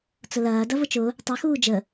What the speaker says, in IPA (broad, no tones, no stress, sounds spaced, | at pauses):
t͡s ʊ l ɐː d ɐ v ʊ t͡ʃ ʊ | tˤ e x uː d͡ʒ ə